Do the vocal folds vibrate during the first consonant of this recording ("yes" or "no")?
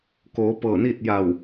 no